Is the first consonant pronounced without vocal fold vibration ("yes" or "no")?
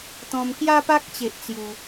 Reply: yes